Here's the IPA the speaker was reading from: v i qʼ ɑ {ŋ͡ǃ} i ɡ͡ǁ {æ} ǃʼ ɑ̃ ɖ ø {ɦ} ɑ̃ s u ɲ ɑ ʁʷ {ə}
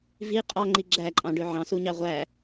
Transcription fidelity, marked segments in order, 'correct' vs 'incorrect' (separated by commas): correct, correct, incorrect, incorrect